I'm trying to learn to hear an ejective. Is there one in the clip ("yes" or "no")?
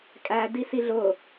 yes